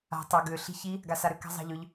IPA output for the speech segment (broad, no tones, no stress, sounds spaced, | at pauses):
a̤ tˤ ɑ ɡ ʏː ɬ i̤ ç i | ɡ a s a ɾ ʏ k a̤ zˤ ɑ̤ ʎ ʏ ʎ